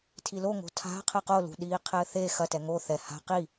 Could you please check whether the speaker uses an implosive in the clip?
yes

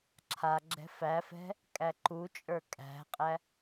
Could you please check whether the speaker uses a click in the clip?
yes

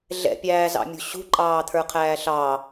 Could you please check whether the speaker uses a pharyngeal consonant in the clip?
no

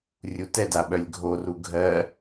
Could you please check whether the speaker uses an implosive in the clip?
yes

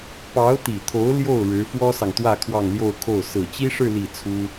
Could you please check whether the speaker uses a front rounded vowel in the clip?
no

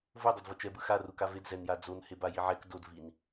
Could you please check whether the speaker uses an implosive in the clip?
no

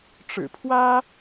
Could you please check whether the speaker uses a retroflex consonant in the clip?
yes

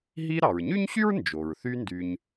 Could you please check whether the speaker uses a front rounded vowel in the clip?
yes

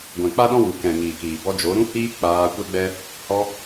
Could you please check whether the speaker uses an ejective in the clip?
no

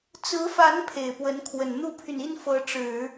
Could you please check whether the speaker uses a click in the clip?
no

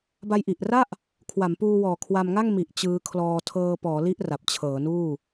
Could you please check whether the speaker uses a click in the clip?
no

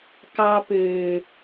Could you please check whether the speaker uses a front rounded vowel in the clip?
yes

